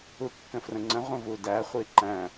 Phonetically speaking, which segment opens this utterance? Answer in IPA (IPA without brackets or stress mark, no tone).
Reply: u